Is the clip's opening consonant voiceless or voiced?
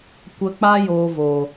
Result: voiceless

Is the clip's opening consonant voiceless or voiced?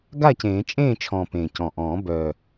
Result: voiced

